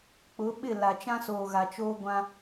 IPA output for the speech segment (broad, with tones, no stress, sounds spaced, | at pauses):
k͡p ʊ˨˦ ɓ ɪ˦˨ l a˨ t͡ʃ ã˦ s oː˨ ɣ a˨ t͡ʃ oː˦ ɡʷ ã˦